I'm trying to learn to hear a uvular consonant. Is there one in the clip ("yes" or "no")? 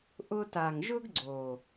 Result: no